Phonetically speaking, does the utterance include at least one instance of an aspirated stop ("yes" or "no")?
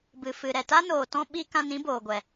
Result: no